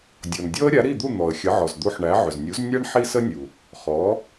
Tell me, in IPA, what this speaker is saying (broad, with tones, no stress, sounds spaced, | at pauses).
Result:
dʲ ɔ˩ n dʲ ɔ˥ ə̯ ɾʲ a˩˥ ɾ i˥˩ d̪ u˥˩ n̪ ɔ˩ ə̯ xʲ ə˩˥ ʕ ɔ˩ z d̪ u˧ ħ ɳ æ˩˥ ʕ ʏ˩ z nʲ u˩˥ z nʲ a˥ ɳ ħ i˥ s ə˥ nʲ u˩ | χ ɔ˩˥